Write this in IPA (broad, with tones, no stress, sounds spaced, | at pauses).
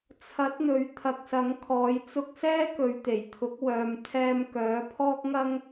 t͡sʰ ɐ˨˥ t̚ n̪ ɵ˨˧ ɥ t̪ʰ ɐ˨ k̚ s ɐ˨˥ ŋ kʰ ɔː˨˧ j t͡s ʊ˧ k̚ s ɛː˥ k ɵ˨ ɥ t̪ e˨˩ j t̪ʰ ʊ˨˥ k̚ w œː˨ m t̪ʰ ɛː˧ m k œː˨˥ pʰ ɔː˥ k̚ ŋ ɐ˥ ŋ